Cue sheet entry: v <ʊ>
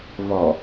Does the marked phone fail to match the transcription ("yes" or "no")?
yes